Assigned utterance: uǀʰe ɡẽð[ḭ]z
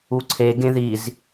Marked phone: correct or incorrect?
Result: incorrect